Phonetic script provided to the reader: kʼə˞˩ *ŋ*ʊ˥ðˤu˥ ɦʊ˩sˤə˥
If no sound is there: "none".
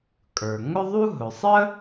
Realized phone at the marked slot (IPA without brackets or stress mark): ŋ